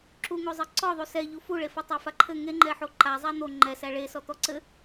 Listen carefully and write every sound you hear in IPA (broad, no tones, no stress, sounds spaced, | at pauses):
ǁ u ŋ o zˤ ɘ ǀ ɔ ðˤ u s ɛ ʎ u f u ɭ e f ʌ tˤ æ f a ǃʰ ɘ ŋ e ŋ͡ǃ ɛ ħ o ǃ a zˤ æ n̪ o ŋ͡ǃ ɛ s æ ɭ e s ɔ t̪ ɔ ǀ ɘ